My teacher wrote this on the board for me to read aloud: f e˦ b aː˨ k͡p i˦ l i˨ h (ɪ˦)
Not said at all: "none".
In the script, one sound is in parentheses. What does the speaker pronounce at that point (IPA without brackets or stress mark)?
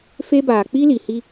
i˦